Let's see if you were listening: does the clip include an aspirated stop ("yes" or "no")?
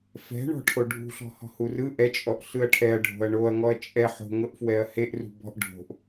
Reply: yes